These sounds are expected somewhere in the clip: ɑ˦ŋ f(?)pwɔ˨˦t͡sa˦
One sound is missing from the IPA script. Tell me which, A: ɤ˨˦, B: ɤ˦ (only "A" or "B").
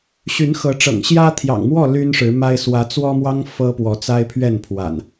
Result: B